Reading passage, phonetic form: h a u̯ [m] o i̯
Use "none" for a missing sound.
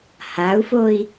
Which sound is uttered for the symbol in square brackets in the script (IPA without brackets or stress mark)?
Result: f